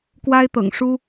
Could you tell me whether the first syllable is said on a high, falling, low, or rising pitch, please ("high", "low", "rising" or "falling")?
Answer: high